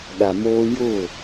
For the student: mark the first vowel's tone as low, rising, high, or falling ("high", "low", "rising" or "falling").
low